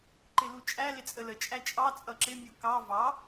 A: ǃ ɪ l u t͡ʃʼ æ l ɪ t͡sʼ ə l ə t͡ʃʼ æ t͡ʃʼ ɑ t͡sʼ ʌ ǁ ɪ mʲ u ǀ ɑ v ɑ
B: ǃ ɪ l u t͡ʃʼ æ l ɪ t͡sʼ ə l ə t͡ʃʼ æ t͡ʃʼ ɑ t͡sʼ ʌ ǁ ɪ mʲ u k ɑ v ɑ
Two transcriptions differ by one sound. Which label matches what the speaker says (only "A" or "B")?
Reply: B